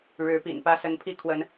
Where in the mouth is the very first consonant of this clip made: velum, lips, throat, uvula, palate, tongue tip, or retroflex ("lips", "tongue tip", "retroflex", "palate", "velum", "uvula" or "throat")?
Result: retroflex